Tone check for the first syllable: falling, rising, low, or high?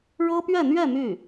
high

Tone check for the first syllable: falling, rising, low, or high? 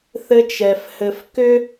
high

